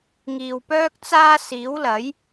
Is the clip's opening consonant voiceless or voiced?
voiced